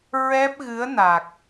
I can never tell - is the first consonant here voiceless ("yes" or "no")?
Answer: no